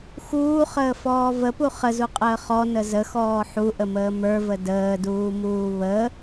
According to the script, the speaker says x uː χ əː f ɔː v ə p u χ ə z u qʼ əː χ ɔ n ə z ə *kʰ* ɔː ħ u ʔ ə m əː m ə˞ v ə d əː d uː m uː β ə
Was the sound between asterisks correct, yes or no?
no